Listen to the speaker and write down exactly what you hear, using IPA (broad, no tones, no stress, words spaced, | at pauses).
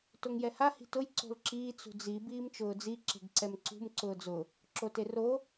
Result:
toŋjɛha hi̤tʊj ǀo̤lǁiː t͡sṳd͡zi biːmt͡ʃʊːd͡zi ǁe̤ɡǀɛmǀṳm ǀʊːd͡zʊ | ǁotero